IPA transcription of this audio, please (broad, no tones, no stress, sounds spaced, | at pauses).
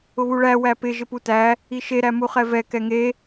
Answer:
ʊ β u ɭ æ w æ p ɪ ʒ ɪ p u t æ | i ʃ e ɾ æ m u χ ɛ v ɛ k ɛ ŋ e